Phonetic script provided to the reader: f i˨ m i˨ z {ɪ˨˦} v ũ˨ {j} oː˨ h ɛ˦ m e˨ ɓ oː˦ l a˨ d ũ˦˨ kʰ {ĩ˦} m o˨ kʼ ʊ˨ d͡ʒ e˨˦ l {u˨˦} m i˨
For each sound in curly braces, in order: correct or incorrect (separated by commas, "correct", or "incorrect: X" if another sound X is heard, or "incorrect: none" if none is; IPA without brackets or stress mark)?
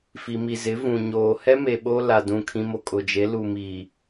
correct, incorrect: ɲ, correct, incorrect: u˨